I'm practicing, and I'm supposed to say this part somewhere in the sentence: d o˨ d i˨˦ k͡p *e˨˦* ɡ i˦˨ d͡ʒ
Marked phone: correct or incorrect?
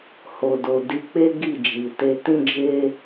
incorrect